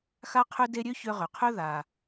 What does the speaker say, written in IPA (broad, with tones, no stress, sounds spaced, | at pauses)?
x a˦ qʰ ø˦ d e˦ ɾʲ ø˥ ç ø˦ ʁ ø˨ qʰ ø˥ ð a˨